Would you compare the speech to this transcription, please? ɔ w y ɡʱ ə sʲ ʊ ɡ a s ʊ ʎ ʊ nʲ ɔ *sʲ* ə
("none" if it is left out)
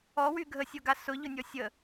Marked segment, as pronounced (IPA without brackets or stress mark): sʲ